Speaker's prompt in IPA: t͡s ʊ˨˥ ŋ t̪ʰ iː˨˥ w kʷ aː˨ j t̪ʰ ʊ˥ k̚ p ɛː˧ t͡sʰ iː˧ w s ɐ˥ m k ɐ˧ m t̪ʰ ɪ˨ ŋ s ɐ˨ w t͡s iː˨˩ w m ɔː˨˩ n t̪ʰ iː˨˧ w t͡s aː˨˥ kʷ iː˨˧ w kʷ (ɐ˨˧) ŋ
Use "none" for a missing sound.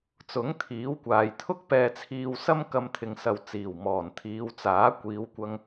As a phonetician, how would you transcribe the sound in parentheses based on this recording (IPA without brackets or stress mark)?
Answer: ɐ˧